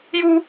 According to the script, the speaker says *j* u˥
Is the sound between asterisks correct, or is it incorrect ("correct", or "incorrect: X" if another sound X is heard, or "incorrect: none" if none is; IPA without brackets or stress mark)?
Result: correct